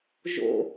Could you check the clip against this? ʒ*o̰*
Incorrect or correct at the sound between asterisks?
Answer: correct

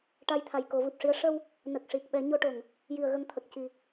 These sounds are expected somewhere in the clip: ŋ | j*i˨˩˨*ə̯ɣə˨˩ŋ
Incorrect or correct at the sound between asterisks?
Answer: correct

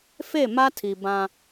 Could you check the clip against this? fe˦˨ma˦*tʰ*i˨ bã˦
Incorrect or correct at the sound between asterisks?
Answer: correct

